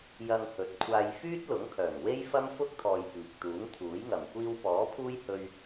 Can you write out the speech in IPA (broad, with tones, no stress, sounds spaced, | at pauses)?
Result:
j ɐ˧ ŋ h ɵ˨˥ t̚ kʷʰ aː˧ j f yː˥ t̚ l ʊ˨˥ ŋ kʰ œː˨˩ ŋ w e˥ j f ɐ˥ m f ʊ˥ k̚ t̪ʰ ɔː˨ j p iː˨ k̚ t̪ uː˨˥ ŋ t̪ʰ uː˨˥ j ŋ ɐ˨˩ m kʷ iː˧ w p ɔː˨˥ pʰ uː˥ j h ɵ˧ ɥ